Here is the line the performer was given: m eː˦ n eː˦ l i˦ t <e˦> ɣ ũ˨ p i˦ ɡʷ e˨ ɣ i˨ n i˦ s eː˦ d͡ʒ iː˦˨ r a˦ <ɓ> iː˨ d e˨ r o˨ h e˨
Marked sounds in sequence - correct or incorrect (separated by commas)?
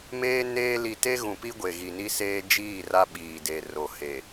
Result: correct, correct